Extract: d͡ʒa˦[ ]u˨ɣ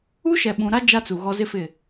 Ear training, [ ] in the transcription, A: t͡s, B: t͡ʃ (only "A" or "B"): A